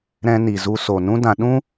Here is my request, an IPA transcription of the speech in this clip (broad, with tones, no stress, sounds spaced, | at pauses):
ɾ ɛ̃˧ n i˨ z u˧ s o˨ n ũ˦ d ã˧ ɗ ũ˦